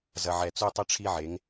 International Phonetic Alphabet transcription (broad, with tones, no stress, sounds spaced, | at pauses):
z ɐ˨ ʕ ɛ˨ t͡s u˦ tˤ ɘ˦ ʈ͡ʂʰ i˦ ʕ e˨˦ ŋ